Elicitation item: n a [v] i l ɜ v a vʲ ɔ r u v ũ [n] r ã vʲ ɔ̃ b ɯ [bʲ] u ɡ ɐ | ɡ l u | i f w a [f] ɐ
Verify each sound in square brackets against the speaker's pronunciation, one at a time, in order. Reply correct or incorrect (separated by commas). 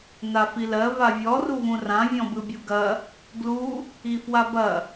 incorrect, incorrect, correct, incorrect